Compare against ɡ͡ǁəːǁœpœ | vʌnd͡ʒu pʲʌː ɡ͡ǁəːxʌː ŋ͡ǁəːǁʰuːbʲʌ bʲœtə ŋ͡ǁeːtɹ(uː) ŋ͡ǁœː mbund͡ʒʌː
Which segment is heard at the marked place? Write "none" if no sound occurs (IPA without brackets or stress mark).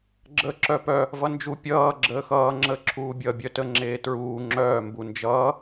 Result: uː